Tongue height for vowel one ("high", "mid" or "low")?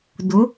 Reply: high